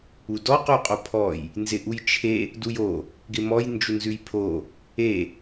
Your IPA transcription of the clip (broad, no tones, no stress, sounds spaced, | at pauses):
u d ɔ q ʉ qʼ o pʰ ɔ j | n z ɪ ʔ u j t͡ʃʰ e | d u j o | ɡ ɪ m ɔ j n d͡ʒ u n z ʉ j pʰ o | e